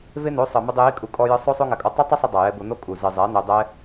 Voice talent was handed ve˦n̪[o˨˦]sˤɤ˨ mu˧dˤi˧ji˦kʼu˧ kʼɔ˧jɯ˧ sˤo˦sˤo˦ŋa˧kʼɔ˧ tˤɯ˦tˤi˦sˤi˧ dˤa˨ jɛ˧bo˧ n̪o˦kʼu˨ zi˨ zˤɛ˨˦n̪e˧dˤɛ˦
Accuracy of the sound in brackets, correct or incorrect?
correct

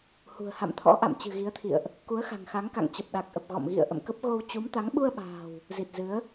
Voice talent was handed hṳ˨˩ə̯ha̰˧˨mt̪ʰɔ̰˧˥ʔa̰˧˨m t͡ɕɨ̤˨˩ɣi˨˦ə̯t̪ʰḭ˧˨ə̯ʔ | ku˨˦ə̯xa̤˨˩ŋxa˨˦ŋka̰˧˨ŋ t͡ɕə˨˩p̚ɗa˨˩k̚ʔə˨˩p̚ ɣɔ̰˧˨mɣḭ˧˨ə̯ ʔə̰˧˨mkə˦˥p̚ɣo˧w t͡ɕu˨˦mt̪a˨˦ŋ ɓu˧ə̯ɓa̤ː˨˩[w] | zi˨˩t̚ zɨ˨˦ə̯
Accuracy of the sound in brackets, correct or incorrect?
correct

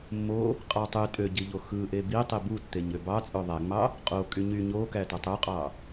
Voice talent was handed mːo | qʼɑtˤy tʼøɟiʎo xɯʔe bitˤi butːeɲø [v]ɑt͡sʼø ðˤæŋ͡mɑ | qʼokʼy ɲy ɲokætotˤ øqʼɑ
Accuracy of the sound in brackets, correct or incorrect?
incorrect: b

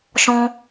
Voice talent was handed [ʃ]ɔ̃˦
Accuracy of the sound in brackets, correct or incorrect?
correct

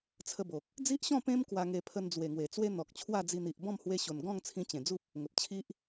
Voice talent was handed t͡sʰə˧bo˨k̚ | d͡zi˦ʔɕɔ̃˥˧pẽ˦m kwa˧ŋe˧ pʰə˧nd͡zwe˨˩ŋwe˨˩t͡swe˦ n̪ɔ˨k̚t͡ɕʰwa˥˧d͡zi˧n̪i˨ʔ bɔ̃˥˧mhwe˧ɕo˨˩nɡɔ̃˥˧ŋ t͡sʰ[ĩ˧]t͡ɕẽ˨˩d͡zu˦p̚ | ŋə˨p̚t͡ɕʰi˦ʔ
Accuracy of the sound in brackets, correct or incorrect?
correct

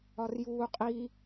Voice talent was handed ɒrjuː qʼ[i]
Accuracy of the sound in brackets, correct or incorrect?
correct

